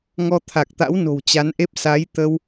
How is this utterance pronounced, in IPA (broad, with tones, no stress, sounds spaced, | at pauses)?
ŋ ɔ˧ t̪ʰ a˨˩ k̚ t̪ a̰˧˥ w n o̤˨˩ w t͡ɕ a˨˦ n ʔ e˦˥ p̚ s a˨˦ j t̪ ə˧ w